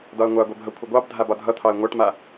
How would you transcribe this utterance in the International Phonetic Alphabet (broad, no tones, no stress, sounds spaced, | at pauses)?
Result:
d ɒ ə̯ ŋʷ a ɡʷ ɛ b ɦ ʌ kʷʰ ə ɡʷ ɑ b dʱ a b ɒ dʱ ʌ t̪ʰ ɑ ə̯ ŋʷ a ʈ m a